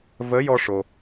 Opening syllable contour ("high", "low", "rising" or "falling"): rising